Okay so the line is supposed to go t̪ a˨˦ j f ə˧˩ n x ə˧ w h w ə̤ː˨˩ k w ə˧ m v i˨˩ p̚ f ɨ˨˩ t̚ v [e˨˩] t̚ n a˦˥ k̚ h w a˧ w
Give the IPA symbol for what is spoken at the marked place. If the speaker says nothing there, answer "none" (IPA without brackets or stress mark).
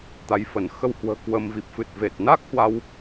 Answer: e˨˩